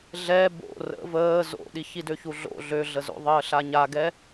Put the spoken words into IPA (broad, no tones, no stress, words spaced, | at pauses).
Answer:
ɮɛ bo̰ rə̰ vəː zo̰ɗi çidøçuɮo̰ ɮøɮəzo̰ðˤəː ɬaɲaɡɛ